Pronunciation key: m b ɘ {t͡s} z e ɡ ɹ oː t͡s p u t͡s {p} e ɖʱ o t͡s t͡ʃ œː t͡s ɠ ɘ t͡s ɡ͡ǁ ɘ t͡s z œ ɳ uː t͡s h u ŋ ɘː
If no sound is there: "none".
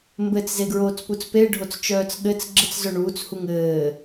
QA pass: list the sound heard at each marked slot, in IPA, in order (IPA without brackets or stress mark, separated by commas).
t͡s, p